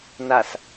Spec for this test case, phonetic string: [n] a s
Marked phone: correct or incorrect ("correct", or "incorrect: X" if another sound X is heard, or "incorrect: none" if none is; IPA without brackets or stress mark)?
correct